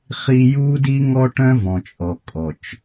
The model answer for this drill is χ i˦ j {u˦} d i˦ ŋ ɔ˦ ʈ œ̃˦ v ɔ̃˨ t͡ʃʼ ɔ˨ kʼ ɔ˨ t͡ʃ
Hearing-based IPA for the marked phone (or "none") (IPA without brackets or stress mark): u˦